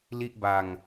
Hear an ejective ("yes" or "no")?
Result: no